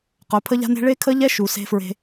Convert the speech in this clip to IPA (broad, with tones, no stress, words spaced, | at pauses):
qœ˨˦pʰə˦ʎa̤˦ne̤˦ ɭe˦kʰə˦ʎɛ˦ ʃu˨ se̤˦fɹe̤˦